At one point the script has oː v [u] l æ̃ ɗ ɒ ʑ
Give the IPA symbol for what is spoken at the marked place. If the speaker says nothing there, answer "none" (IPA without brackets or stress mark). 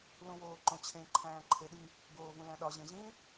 ũ